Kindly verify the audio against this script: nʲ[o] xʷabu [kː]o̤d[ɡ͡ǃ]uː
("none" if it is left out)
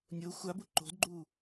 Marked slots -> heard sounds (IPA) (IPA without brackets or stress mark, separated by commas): o, ǃ, ɡ͡ǃ